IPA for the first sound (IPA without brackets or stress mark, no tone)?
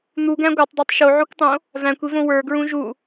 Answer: n̪